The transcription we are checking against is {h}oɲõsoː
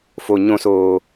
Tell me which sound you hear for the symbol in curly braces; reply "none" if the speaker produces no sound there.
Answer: f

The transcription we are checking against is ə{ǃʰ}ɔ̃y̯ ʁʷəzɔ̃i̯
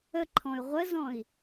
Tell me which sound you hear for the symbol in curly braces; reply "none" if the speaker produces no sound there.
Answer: ǃʰ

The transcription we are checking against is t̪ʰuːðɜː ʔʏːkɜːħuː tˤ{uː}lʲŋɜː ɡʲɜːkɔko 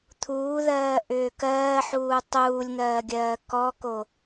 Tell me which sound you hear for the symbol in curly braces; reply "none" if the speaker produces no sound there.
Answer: uː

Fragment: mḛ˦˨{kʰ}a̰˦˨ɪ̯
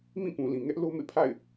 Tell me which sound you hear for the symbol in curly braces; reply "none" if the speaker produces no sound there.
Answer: pʰ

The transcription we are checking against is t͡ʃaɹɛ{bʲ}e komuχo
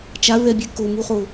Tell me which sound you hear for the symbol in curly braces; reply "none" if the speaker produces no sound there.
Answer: bʲ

